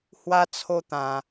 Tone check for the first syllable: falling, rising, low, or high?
high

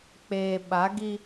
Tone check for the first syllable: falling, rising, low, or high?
low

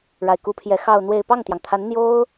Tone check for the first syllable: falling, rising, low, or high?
low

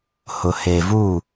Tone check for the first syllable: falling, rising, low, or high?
low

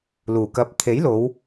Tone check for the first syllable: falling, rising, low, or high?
low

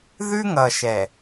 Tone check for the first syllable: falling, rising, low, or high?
high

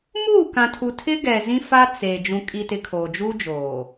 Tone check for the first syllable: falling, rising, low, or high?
falling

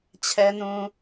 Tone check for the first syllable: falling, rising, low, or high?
low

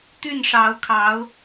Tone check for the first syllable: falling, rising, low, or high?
falling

